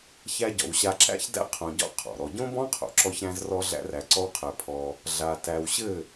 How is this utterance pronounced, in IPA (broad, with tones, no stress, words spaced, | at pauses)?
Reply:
çæ˦ ɟɔ̰˨wɕa˧ǁæ̰˦çdæ̰˦ qʰõ˧ɟɔ̰˦ qʰɔ̰˨ɾɔ˧ ɟõ˦bɔ̃˦qʰo̰˨ ǁɔ˦çɾæ̃˦zrɔ˦ ɮæ̰˦ræ˧ǀɔ˦wqʰæ˧ pʰɔ˧ | ɮa˨ tæ˨wɕɘ˦˨